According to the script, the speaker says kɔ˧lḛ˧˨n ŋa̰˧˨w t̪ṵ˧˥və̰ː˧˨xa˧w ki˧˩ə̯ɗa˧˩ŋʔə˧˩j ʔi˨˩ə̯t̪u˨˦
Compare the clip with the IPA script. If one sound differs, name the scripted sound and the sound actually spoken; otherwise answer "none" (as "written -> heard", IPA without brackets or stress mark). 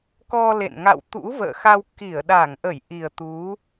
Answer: none